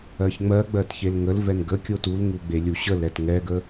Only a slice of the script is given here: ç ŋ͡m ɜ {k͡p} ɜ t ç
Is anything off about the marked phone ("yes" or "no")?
yes